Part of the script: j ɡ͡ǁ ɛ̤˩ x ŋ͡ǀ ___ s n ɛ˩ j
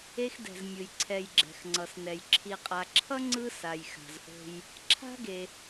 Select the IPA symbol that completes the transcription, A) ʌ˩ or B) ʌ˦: A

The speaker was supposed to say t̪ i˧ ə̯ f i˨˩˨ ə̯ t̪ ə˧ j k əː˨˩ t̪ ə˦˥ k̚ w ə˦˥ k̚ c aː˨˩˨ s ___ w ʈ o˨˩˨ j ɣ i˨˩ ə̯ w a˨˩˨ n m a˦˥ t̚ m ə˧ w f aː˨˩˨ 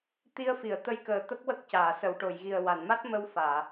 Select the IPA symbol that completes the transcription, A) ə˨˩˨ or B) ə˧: A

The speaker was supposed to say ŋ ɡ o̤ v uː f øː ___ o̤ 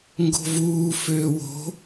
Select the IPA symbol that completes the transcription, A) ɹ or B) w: B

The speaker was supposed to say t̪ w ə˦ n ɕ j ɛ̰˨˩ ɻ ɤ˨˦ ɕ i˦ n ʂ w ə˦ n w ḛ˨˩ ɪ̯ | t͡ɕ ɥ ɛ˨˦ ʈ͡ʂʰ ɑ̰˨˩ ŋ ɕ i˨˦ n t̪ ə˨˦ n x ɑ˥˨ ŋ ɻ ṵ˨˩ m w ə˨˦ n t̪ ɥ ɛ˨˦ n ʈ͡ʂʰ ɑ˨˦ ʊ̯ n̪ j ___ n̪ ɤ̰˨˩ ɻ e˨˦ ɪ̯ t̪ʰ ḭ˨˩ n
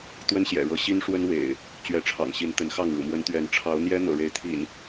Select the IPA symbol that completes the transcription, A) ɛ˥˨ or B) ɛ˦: B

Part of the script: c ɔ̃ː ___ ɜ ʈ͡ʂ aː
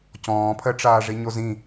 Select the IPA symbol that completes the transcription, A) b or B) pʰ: B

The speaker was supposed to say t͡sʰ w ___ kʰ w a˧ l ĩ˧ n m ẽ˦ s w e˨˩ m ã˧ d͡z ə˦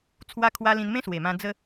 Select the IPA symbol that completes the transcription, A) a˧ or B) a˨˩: A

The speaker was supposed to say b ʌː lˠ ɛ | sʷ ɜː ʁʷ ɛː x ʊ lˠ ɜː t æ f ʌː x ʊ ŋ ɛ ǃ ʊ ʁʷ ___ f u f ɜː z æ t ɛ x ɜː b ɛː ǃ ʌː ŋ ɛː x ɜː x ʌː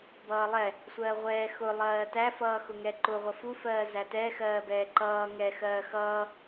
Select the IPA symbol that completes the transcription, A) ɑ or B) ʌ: B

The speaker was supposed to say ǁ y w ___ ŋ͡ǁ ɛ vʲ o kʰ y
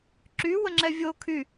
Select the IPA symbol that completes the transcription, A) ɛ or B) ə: B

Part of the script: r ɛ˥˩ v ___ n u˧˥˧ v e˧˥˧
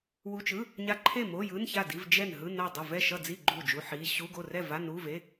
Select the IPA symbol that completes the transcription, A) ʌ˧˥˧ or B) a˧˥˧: B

